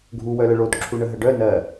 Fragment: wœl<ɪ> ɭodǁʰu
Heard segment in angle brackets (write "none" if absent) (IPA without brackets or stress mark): ə